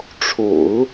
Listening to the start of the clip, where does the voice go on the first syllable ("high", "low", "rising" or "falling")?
low